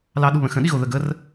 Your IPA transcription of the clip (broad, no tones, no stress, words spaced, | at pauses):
lɑɗuβə̃ xə̃ɗiɣo ðəɡər